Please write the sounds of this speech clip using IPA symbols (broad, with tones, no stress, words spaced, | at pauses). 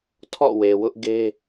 tʰɔ̰˦˨we˨ wʊ˦ʔɡe˦